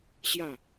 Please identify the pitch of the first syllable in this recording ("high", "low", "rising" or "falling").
falling